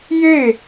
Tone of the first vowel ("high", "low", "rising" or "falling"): falling